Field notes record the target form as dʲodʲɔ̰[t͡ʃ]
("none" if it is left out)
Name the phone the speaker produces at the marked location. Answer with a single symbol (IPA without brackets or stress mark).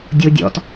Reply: t